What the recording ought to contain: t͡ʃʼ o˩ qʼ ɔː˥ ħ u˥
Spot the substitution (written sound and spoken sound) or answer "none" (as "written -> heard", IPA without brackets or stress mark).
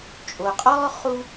ħ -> χ